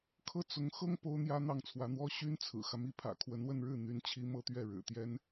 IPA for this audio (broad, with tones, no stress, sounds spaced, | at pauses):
kʰ ɤ˥˩ t͡s ʊ˧˥ ŋ x ɤ˥ ŋ p o˥ ʊ̯ n̪ j ä˥ n̪ ɑ˥˩ ŋ t͡sʰ w ä˧˥ n̪ w ɔ˥ ɕ y˥ n t͡sʰ ɹ̩˨˩ x ä˦ m i˧˥ pʰ ä̰˨˩ kʰ w ə˧˥ n w ə˥˧ n ɻ ɻ̩˥˩ n̪ y˧˥ n t͡ɕʰ i˥ m ɤ˥ t̪ ɥ ɛ˥˩ ɻ ɻ̩˨˩ t̪ j ɛ˥ n